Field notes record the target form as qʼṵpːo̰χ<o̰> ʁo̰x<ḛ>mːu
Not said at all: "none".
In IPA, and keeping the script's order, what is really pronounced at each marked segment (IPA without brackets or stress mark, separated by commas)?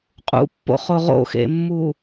o, ḛ